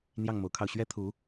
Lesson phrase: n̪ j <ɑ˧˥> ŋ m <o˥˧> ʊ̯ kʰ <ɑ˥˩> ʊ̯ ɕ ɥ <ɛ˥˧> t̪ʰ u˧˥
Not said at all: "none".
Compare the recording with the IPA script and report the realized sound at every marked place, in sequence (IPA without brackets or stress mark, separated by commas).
ɑ˥˩, o˧˥, ɑ˧, ɛ˥